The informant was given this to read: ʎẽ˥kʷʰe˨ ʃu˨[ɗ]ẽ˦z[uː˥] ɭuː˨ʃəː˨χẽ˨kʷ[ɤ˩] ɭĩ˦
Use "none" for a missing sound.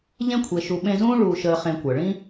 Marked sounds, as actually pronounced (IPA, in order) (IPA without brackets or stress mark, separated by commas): ɓ, ũː˥, ɤ˩